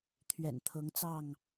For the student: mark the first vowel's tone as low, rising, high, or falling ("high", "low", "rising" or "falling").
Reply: low